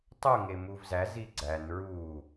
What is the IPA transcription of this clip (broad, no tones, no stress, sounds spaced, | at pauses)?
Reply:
tˤ u ŋ e m u v z æ z i ɡ͡ǀ æ n ɹ u